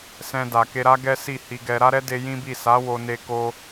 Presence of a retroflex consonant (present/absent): absent